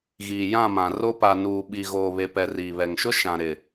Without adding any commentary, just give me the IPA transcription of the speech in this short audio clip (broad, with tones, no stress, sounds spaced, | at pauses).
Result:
ɣ iː˨ j ã˦˨ m ã˨ r o˦ p a˨ n uː˨ ɓ i˨ ɣ oː˨ β e˨ p ɛ˨ r iː˨ β ɛ˨ ŋ ʃ ʊ˦ ʃ ã˨ ɾ ɪ˨